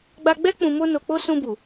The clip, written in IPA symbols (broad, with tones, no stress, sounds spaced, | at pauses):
ɡ͡b a˧ ɡ͡b ɛ˦ k͡p ũ˧ m o˦ n o˧ k͡p o˦ s ũ˧ b u˨